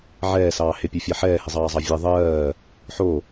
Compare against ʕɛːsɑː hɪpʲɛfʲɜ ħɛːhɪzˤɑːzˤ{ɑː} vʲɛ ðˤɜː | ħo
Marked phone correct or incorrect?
incorrect